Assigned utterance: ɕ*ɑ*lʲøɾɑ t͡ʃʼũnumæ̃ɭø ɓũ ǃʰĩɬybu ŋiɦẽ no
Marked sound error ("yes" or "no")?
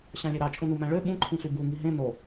yes